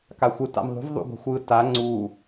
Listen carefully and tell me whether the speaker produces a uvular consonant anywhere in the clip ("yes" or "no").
no